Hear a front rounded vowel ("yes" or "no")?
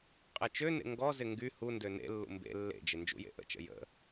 yes